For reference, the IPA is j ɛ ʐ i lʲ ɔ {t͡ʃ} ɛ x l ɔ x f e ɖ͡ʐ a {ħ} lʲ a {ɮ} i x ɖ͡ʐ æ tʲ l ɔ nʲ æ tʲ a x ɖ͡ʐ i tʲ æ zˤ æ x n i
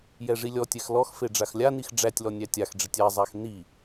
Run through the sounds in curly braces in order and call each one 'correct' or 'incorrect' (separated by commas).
incorrect, incorrect, incorrect